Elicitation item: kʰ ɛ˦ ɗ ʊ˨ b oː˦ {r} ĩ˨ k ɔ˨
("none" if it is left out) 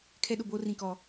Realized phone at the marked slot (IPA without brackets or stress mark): r